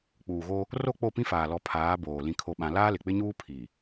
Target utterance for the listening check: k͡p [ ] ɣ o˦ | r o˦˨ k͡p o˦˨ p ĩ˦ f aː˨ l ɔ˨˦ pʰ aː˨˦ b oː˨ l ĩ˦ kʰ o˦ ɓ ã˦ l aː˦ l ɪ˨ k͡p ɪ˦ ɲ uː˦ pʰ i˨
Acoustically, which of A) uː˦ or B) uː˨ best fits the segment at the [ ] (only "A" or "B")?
B